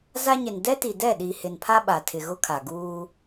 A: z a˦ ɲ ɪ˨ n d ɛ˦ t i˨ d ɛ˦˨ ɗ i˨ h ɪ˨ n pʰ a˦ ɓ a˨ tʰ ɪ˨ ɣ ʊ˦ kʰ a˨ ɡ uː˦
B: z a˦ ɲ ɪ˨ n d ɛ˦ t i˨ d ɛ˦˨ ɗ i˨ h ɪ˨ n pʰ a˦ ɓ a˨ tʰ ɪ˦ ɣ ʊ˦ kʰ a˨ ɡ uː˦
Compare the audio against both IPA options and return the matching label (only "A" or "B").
A